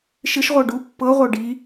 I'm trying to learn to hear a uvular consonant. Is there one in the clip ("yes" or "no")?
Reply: yes